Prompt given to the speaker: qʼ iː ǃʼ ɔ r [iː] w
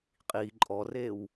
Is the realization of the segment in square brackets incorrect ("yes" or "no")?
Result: yes